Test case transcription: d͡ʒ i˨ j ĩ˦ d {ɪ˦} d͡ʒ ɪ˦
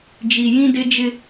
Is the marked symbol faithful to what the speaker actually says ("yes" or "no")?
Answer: yes